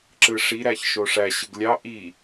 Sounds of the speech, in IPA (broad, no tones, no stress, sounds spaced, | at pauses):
ǁ ɯ ʂ i ɾ æ ç ʃ o ʂ æ ɕ ɯ ɡ lʲ ɑ ʔ i